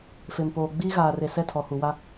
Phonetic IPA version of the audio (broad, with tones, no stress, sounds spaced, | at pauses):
f e˨ m p oː˨ ɡ͡b iː˦ ɣ aː˨ r e˨ s ɛ˦ tʰ ɔ˨ h u˨ w a˦